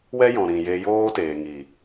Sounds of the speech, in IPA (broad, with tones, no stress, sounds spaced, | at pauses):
w ɛ˦ j ɔ̃˨ ɾ ĩ˨ j e˧ j oː˦ t eː˨ ŋ i˨